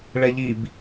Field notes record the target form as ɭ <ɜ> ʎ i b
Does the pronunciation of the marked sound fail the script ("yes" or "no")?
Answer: yes